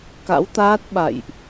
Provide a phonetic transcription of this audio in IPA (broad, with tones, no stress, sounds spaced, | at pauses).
k a̰˧˥ w t̪ aː˦˥ t̚ ɓ a̰˧˨ j ʔ